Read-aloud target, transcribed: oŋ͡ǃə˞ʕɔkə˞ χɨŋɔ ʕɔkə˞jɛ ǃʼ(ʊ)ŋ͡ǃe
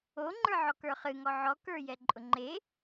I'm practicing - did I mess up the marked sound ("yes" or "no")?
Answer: no